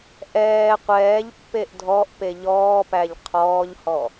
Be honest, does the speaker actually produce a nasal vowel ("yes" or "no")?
no